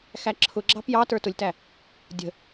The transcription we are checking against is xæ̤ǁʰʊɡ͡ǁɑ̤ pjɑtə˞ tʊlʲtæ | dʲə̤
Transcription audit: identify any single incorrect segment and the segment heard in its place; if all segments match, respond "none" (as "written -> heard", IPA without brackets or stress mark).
æ̤ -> æ